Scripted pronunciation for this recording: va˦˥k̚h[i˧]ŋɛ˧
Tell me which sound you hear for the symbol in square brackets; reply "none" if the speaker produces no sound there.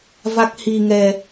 i˧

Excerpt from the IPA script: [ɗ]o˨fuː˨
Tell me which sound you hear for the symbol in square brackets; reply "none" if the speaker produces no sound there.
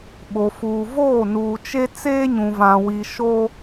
ɓ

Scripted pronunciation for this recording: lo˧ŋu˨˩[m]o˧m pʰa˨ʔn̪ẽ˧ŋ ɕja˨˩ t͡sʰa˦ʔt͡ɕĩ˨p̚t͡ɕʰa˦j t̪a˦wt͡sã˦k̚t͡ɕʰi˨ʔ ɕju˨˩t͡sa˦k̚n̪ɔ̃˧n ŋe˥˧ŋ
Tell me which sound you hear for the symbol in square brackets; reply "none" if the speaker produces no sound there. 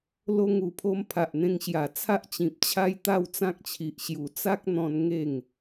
pʰ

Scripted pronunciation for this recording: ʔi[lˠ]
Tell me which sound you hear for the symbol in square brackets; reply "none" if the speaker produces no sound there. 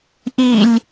lʲ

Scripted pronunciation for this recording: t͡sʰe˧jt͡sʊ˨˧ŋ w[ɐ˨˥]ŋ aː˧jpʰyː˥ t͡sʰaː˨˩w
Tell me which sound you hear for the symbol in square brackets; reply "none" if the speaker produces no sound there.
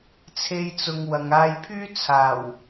ɐ˨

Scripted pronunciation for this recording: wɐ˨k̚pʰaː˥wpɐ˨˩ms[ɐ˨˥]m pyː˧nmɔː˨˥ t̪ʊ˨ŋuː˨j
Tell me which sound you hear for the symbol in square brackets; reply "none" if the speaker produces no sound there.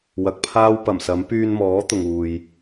ɐ˨˥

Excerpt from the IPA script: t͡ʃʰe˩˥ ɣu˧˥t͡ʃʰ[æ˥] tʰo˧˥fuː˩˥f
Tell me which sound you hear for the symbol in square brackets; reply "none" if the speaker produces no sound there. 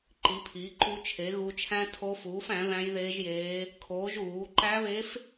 æ̃˥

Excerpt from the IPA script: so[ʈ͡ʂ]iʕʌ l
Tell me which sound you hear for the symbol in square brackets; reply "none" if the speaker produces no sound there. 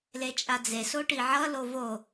ʈ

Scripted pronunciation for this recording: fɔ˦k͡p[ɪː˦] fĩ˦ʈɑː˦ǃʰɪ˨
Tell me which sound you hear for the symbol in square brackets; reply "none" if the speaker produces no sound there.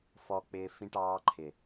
ɪː˦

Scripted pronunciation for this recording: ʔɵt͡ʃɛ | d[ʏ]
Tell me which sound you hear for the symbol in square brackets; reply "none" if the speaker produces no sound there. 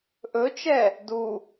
u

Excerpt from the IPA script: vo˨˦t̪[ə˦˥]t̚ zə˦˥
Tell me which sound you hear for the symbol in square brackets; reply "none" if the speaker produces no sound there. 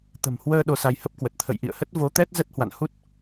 ɛ˦˥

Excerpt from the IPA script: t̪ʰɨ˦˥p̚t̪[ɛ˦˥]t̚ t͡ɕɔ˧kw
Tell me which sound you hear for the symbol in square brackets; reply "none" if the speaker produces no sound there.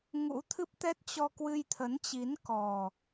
ɛ˦˥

